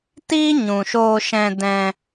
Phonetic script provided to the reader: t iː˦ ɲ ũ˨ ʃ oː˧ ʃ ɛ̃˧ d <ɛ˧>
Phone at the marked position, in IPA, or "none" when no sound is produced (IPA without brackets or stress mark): ɛ̃˧